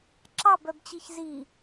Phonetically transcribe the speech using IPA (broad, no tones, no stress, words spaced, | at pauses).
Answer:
ǁɑbœbt͡ɕiç zi